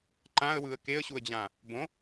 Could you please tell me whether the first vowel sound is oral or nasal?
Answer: nasal